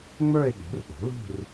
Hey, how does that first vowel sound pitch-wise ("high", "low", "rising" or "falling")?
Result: falling